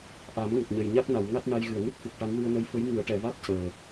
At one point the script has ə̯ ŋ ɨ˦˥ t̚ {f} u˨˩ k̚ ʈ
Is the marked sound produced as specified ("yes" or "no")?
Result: yes